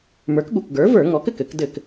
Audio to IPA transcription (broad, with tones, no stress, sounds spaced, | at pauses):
m ə˞˩˥ k ɠ u˩˧˩ k ɡ ə˞˩˥ v ə˞˧˩˧ ŋ ɔ˩˥ k ɘ˥˩ k ɘ˧˩˧ k d ɘ˧˩˧ k